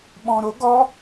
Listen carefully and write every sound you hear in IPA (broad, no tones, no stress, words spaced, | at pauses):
ɓɔ̃ɾo ɡɔ